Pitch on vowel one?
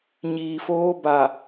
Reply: low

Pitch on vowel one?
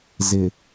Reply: low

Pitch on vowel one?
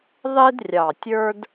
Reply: high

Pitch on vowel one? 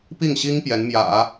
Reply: falling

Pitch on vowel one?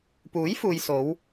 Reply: rising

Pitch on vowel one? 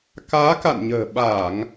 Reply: rising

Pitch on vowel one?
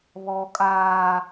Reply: high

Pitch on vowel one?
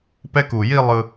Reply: falling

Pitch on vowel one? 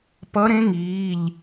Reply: rising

